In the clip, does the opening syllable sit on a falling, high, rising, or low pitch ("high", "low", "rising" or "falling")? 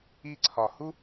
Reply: falling